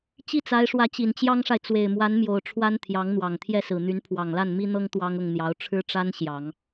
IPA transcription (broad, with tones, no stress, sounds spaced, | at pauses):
t͡ɕ i˥˩ t͡s a˧˥ ɪ̯ ʂ w ä˧˥ t͡ɕ i˨˩ n t͡ɕ j ɑ˥ ŋ ʂ a˨ ɪ̯ t͡s w e˨˩ ɪ̯ m w a˧˥ n m j o˨˩ ʊ̯ ʈ͡ʂʰ w a˥ n t̪ʰ j ɑ˧˥ ŋ n̪ w ɑ˨˩ ŋ t̪ʰ j ɛ˥˩ s ɹ̩˨˩ n̪ y˧˥ n pʰ w ɑ˨˩ ŋ l a˥˩ n m i˥ n̪ ɤ˥ ŋ t̪ w ɑ˥ ŋ ʊ˥˩ ŋ n̪ j ɑ˧˥ ʊ̯ ʈ͡ʂʰ ɻ̩˥ ʈ͡ʂ a˥ n ɕ j ɑ˨˩˦ ŋ